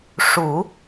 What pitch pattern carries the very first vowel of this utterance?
low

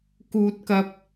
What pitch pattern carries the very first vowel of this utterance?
high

